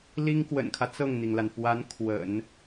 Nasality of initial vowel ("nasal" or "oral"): oral